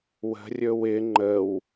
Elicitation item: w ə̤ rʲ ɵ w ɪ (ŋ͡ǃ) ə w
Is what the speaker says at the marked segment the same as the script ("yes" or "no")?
yes